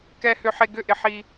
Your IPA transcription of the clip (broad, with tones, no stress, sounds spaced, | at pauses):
k ɛ˦ h ʏ˦ ħ e˦ ɡ ʏ˥˨ ʔ ɪ˦ ħ i˦